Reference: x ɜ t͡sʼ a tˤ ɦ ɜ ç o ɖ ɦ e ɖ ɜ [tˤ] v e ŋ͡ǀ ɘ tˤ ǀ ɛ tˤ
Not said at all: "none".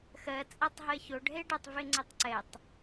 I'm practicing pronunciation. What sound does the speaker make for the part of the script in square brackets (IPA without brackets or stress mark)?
tˤ